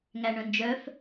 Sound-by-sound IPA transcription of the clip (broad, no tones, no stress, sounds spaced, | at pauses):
ŋ æ ɳ œ̃ n d͡ʒ œ f